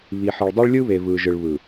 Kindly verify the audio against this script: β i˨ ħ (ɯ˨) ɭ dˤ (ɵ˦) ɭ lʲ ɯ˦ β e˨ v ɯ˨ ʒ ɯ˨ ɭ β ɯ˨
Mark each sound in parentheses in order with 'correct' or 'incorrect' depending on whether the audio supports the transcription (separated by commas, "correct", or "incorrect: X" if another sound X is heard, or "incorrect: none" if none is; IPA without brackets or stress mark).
correct, incorrect: o˦